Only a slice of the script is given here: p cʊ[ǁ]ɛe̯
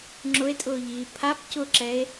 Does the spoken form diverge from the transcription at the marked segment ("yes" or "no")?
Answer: no